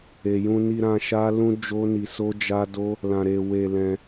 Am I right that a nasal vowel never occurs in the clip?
no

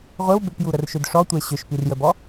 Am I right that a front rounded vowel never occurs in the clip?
no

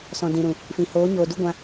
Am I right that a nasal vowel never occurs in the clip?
no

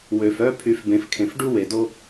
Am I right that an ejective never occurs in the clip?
yes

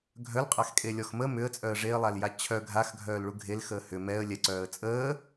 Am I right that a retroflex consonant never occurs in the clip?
no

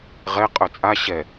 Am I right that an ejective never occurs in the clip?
no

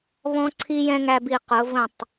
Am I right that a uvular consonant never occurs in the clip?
no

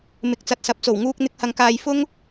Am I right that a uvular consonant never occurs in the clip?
yes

